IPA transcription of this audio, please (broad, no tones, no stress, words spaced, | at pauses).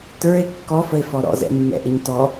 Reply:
tə˞e̯ kːɔfəe̯fɔ ɾɔ̰zɛ̰mːɛ̰ʔɪɲ tɔ